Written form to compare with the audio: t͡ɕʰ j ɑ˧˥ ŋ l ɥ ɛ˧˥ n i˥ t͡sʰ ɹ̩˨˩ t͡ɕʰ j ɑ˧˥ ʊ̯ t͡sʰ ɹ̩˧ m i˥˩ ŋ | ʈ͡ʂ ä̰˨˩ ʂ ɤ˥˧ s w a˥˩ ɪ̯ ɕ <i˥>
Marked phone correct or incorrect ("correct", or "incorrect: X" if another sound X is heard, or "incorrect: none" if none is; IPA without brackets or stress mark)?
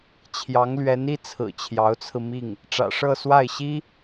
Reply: correct